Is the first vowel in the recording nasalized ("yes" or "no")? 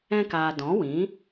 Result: yes